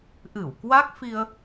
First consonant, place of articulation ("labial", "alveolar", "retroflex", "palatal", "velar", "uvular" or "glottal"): glottal